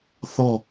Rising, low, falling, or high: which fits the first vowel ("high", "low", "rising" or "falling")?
falling